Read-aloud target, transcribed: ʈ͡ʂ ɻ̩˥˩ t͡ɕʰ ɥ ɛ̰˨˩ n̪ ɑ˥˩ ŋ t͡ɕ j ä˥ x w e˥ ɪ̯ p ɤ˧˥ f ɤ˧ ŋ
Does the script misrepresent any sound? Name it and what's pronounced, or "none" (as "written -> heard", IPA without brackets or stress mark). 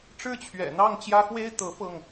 p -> t̪